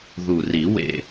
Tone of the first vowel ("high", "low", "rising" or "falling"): low